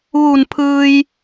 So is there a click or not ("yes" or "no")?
no